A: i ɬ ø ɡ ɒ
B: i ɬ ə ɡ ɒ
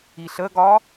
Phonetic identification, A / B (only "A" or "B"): B